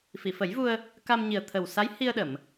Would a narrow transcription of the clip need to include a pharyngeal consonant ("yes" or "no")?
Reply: no